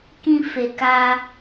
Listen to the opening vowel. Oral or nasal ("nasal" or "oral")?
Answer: nasal